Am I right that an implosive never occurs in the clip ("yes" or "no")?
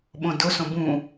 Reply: no